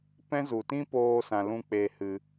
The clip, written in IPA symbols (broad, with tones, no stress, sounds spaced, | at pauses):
p ɛ̃˦ z u˨ t ĩ˦ p oː˧ s ã˨ l ũ˧ k͡p e˨ h ɨ˨